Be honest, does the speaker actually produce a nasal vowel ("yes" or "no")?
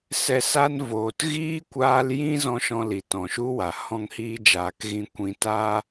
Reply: yes